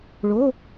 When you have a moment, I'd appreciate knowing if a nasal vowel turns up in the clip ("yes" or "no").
no